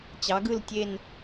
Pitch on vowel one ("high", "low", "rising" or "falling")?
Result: rising